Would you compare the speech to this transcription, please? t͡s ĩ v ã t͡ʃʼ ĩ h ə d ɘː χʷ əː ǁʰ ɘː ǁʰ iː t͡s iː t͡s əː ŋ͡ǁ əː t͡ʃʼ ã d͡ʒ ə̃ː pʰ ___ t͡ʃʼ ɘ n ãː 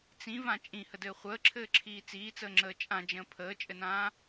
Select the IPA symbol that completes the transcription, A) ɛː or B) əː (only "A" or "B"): B